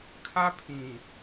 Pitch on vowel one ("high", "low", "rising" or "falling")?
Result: high